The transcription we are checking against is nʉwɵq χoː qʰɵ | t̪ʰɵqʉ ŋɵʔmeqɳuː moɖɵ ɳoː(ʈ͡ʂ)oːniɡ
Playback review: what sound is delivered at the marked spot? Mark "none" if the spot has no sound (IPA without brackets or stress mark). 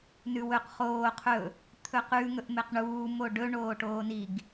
ʈ